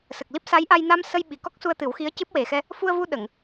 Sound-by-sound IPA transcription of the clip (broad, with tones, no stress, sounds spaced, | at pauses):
s ə˨˩ k̚ l i˦˥ p̚ s a˧˥ j ʔ a˧ j n a˧ m s ə˧ j ɓ i˨˩ k ɔ˦˥ k̚ s u˧ ə̯ t̪ ɨ˨˩˦ w x i˧˥ ə̯ c ɨ˦˥ p̚ w e˨˩ x ɛ˧ | f u˧ ə̯ v u˧ ɗ ə˨˩˨ ŋ